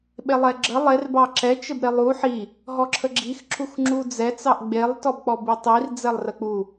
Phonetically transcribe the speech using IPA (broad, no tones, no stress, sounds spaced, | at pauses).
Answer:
ɓ e lˠ ɛ ɡ͡ǁ ə lˠ e r b ɑ ǁ ɛ t͡ʃ ə b ɾ e lˠ u ħ i | ɦ ɔ ǁʰ ə ɡ͡ǁ i x ǁ u x ŋ͡ǁ u d͡z ɛ t͡s ɑ ʔ ɡ͡b e lˠ t ɔ b k͡p ɔ b i tˤ i r d͡z ɛ lˠ r ə k͡p u